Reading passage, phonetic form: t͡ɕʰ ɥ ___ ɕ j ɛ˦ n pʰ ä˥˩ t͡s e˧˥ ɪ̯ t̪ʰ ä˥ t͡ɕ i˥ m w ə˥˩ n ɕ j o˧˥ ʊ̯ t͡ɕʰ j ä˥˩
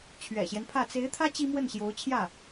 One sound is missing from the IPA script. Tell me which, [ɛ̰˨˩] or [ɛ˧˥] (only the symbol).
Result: ɛ̰˨˩